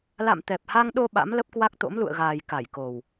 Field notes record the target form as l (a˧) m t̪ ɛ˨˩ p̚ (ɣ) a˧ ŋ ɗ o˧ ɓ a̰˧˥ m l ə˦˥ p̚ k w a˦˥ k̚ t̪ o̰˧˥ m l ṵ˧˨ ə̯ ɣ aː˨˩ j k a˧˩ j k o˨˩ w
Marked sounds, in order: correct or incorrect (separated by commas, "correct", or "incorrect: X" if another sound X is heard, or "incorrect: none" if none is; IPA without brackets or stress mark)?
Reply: incorrect: a̰˧˨, incorrect: h